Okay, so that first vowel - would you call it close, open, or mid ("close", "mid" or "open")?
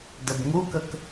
mid